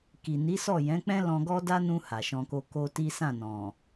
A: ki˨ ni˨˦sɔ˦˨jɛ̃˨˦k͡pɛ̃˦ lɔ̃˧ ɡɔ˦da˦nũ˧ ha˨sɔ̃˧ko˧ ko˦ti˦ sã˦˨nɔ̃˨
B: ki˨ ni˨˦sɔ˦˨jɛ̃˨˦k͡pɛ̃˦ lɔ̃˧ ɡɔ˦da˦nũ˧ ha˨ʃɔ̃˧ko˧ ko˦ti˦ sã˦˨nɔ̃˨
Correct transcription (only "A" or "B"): B